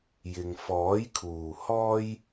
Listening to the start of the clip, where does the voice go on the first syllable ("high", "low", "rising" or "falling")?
low